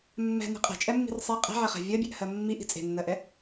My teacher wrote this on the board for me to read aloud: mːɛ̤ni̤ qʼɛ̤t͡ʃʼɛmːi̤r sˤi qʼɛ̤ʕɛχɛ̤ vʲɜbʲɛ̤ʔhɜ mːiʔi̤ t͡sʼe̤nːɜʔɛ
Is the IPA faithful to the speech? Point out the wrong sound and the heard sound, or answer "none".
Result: none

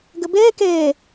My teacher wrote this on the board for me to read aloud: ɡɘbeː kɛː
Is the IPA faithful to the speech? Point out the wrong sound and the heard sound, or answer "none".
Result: ɛː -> eː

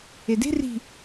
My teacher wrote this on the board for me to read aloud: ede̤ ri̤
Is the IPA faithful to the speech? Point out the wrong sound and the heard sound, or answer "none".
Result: none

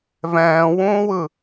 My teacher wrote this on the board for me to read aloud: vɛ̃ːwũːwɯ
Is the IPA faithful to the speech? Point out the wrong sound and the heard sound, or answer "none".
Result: none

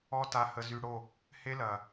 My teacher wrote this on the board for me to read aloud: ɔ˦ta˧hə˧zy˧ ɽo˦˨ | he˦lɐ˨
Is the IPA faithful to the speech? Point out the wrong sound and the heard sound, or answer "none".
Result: none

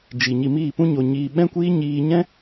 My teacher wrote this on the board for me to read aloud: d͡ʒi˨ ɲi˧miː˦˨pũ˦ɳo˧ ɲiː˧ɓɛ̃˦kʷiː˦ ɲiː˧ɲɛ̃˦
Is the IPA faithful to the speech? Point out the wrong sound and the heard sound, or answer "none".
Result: ɳ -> ɲ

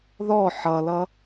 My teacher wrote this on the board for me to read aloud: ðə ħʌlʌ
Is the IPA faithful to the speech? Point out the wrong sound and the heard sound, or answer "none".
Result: ə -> ɔ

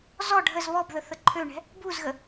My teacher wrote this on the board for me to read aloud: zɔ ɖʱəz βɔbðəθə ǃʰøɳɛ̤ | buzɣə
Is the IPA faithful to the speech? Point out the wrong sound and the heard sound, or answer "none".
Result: none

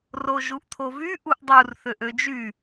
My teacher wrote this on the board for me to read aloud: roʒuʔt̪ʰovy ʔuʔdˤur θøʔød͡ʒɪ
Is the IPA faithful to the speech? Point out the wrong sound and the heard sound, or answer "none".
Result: ɪ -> y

